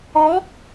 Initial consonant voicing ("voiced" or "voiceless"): voiced